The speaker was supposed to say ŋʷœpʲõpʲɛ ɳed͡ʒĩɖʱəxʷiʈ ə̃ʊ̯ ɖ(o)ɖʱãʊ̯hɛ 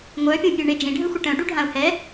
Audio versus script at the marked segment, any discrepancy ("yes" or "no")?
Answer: yes